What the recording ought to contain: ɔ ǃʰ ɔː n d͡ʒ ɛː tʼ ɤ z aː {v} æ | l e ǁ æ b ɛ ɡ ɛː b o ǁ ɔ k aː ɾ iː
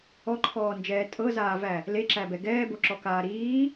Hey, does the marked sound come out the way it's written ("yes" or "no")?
yes